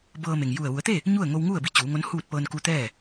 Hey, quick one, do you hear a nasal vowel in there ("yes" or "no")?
no